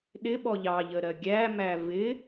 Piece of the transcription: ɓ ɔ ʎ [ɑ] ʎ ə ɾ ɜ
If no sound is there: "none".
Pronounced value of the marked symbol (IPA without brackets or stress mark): ɑ